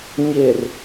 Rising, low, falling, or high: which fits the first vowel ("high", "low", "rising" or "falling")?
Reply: low